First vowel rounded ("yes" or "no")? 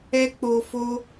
no